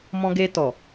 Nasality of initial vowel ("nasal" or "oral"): nasal